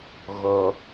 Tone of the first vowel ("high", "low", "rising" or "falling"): low